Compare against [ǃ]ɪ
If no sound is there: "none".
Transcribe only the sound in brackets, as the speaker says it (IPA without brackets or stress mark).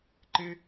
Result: ǃ